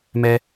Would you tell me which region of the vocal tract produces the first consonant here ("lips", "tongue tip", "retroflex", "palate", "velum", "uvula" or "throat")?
lips